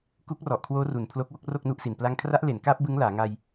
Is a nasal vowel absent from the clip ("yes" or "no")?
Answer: yes